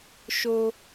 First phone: ʃ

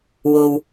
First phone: w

